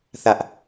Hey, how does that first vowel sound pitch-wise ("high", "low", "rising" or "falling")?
high